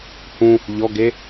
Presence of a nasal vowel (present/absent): present